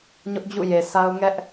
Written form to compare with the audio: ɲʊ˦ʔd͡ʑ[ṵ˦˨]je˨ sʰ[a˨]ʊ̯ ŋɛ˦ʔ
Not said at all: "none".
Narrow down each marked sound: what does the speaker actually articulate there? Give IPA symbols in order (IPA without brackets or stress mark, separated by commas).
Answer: ṵ˦˨, a˦